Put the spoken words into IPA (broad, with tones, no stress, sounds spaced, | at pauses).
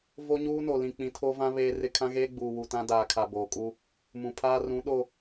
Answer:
v o˦ ɲ uː˦ n o˨ l ĩ˨ k͡p ĩ˨ tʰ o˦ v ã˦ β eː˦ r ɪ˦ kʰ ã˦ ɣ eː˦ ɡ͡b uː˨ w u˨ t ã˦ d aː˨ kʰ a˨ b oː˨ kʼ u˦ | m ũ˨ pʰ aː˦ r ũ˨˦ ɗ o˦